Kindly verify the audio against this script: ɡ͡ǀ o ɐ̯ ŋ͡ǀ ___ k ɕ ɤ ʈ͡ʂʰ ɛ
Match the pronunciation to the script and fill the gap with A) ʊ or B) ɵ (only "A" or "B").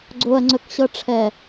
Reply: B